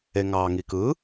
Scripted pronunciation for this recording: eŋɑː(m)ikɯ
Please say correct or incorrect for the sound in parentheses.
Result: incorrect